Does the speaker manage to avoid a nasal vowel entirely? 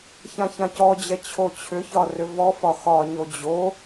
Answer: no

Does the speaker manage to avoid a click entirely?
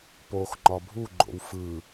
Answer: no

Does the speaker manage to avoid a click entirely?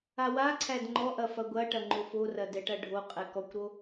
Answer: no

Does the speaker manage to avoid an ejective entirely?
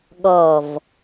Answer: yes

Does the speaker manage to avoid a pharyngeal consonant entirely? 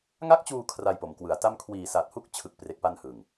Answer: yes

